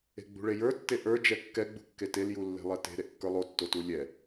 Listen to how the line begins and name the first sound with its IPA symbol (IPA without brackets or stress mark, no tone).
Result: e̤